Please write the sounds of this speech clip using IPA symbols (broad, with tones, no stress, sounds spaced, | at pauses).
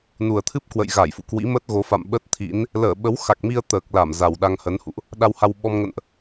n u˨˩ ə̯ t̪ʰ ɨ˦˥ p̚ k w ə̰˧˨ j ɣ a˧˩ j f ṵ˧˨ k w ḭ˧˥ m ə˦˥ t̚ ɣ o˨˦ f a̰˧˨ m ɓ ə˦˥ t̚ t̪ʰ ḭ˧˥ n | l əː˧˩ ɓ ə˨˦ w x a˨˩ k̚ m i˧ ə̯ t̪ əː˨˩ k̚ l a˧˩ m z a˨˩ w ɗ a˧ ŋ h ə˨˦ n h ṵ˧˨ ʔ | ɗ a˧ w h a˧ w ɓ ɔ˧ m ŋ ə̰˧˨ n ʔ